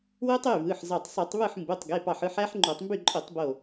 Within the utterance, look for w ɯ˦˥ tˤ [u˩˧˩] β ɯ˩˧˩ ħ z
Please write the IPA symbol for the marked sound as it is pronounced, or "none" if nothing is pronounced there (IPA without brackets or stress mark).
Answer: y˩˧˩